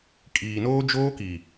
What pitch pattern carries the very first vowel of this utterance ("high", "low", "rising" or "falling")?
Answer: low